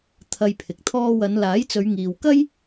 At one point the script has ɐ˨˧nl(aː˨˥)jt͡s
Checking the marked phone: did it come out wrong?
no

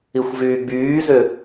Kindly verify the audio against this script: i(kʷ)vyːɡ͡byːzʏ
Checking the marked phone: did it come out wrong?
yes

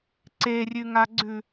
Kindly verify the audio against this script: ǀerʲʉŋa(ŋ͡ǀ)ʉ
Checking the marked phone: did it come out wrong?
yes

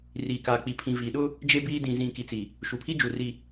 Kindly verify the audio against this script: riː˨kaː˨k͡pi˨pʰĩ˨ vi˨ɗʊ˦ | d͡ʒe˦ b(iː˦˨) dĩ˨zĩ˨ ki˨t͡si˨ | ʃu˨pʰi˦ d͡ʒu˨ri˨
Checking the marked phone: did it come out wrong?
yes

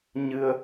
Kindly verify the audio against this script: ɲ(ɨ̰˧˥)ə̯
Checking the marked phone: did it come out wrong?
yes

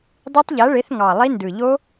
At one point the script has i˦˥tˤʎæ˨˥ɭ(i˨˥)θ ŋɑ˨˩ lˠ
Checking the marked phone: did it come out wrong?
yes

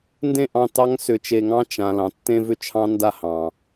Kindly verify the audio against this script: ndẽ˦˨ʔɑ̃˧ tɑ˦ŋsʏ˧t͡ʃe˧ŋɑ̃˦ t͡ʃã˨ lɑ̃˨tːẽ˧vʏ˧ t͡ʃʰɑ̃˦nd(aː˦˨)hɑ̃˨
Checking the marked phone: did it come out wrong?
yes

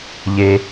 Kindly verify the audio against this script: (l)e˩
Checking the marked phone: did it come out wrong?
yes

